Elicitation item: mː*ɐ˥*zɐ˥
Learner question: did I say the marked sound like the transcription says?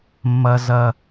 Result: yes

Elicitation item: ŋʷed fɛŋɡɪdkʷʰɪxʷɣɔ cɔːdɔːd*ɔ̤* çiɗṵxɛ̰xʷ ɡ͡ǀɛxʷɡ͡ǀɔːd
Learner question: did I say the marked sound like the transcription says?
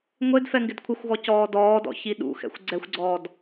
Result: no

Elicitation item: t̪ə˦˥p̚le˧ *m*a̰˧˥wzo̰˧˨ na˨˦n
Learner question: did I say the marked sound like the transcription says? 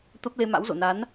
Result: yes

